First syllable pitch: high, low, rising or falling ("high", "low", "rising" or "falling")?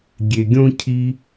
low